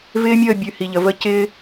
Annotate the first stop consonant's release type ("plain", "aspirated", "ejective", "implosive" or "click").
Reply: plain